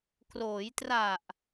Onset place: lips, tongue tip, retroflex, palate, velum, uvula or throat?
velum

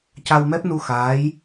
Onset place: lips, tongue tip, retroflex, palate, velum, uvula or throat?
palate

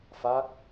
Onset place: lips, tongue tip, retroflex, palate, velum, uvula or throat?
lips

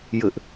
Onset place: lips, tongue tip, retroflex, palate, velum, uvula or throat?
palate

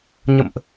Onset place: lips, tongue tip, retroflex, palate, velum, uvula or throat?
palate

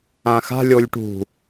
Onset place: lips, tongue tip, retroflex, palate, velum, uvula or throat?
velum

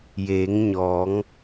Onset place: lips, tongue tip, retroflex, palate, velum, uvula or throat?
palate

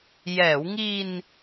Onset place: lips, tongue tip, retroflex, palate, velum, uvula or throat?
palate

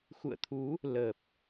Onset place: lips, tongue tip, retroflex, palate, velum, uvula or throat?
velum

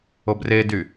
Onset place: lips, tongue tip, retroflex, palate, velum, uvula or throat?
lips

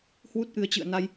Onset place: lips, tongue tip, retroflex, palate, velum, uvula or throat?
throat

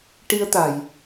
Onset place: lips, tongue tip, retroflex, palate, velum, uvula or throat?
retroflex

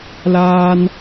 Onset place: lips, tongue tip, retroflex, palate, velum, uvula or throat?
tongue tip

